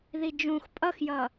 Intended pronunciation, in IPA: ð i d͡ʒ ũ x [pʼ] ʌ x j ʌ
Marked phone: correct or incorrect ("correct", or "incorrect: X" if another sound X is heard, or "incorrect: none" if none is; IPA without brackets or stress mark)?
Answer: correct